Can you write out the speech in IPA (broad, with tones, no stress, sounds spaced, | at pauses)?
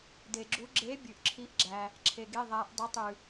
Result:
d e˨ ɡ͡ǁ u˧˥ ɡ͡ǁ e˧˥ bʲ ʉ˨ ʔ ǁʰ i˧˥ ʔ ɡ͡ǁ æ˨ | ǁʰ e˨ ɡ e˧˥˧ ðˤ æ˧˥ ʔ dˤ e˧˥˧ tˤ ʉ˨